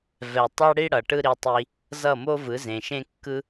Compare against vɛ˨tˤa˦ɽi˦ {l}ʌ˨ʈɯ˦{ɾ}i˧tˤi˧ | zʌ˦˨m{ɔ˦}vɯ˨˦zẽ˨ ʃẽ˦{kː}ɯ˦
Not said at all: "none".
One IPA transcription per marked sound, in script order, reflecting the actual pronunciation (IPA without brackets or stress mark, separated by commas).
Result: ɽ, ɾ, o˦, kː